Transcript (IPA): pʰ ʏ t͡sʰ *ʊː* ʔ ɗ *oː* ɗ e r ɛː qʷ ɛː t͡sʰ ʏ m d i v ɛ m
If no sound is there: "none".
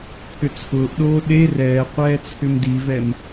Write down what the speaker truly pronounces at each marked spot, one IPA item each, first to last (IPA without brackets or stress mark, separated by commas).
ʊː, oː